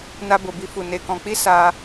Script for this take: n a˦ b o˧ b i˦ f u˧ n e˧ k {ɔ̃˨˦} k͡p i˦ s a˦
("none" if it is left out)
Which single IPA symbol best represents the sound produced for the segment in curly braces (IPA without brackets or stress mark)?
ɔ̃˧